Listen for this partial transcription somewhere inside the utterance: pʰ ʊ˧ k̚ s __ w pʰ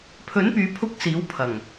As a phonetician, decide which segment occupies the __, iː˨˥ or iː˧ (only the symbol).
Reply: iː˨˥